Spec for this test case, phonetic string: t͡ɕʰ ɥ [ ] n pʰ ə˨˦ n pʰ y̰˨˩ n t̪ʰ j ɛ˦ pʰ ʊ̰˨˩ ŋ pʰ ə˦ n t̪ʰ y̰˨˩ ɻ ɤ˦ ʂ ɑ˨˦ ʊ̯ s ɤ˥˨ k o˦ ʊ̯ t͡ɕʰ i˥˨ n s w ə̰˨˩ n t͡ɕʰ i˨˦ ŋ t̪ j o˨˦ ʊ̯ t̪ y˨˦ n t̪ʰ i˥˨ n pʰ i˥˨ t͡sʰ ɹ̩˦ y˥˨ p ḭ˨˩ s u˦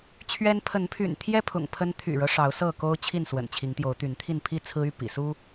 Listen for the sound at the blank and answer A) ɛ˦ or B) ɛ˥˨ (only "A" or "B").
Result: A